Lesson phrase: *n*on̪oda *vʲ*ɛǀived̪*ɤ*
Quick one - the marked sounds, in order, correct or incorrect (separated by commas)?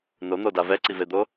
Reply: correct, incorrect, incorrect